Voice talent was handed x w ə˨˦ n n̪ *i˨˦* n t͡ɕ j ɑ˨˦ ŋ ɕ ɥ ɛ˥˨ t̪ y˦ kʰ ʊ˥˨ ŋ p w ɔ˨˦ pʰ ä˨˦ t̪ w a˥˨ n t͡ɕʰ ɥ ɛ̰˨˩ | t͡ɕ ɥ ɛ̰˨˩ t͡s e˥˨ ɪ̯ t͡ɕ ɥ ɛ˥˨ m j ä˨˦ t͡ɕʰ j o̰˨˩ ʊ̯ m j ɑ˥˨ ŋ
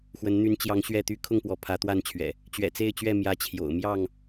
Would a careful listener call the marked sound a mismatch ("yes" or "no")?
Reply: yes